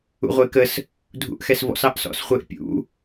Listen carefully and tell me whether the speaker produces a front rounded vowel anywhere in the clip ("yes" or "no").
no